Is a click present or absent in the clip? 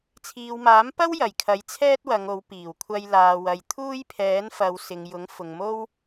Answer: absent